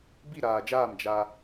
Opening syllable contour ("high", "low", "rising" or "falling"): falling